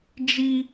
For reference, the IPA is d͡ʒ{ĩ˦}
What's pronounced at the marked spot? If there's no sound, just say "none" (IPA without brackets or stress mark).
i˦